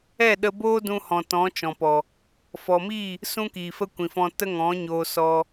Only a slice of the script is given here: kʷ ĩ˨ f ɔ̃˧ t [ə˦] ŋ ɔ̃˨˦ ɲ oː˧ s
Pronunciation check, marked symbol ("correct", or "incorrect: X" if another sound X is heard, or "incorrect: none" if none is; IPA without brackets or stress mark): correct